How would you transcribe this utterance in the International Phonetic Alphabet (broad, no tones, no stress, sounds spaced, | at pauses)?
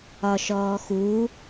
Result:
ɒ ʃ ɔː x u